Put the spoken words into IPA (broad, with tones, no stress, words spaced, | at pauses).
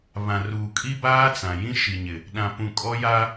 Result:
βã˨ruː˨kʼi˦ baː˦t͡sã˨ jĩ˦ʃi˨ɲɪ˨ | ɗã˨pũ˨ kʼɔ˦ja˦